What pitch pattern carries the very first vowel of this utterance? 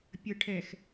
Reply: low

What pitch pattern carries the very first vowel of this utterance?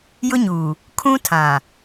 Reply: high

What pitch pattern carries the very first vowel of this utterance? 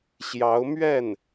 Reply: rising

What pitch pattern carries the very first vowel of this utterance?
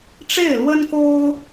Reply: falling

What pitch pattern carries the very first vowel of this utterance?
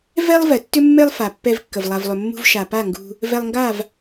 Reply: high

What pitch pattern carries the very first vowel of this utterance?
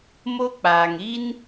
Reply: high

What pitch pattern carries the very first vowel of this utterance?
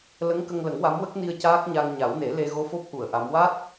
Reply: rising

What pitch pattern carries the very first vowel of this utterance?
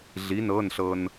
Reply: rising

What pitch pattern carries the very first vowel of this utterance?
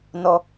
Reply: low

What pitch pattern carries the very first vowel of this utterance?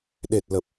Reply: low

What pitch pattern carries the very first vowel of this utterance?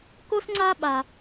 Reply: high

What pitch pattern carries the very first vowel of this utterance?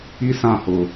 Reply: high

